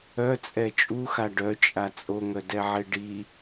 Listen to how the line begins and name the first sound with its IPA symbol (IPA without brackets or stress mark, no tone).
œ